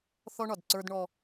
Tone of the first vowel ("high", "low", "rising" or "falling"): high